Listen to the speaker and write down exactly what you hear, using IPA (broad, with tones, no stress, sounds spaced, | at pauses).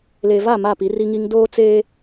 l e˨ v a˦˨ m a˦˨ p i˨˦ r i˦ ŋ i˦ ŋ d oː˦ t͡s eː˦